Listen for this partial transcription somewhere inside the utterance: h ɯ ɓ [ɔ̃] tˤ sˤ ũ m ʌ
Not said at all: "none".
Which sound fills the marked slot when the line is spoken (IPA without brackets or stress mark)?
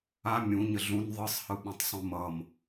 ɔ̃